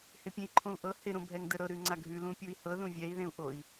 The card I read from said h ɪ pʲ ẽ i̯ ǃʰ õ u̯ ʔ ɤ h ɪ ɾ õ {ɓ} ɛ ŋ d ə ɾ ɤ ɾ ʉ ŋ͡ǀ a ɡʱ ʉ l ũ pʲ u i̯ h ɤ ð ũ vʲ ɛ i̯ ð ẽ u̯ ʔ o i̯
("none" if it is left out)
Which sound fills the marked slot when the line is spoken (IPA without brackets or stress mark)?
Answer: bʱ